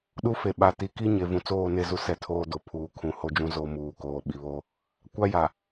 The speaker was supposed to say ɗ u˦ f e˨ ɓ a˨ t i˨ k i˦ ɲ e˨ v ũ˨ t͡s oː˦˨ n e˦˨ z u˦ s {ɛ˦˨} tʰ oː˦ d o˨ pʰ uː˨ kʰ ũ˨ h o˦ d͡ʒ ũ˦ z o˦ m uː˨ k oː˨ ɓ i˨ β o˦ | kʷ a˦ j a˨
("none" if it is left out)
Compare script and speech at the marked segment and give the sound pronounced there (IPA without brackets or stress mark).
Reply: ɛ˦˨